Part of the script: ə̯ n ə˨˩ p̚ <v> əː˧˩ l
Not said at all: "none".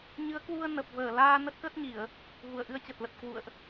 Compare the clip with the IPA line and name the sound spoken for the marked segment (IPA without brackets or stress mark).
v